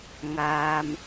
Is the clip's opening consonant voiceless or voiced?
voiced